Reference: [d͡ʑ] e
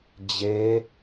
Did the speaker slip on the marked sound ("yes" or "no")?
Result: no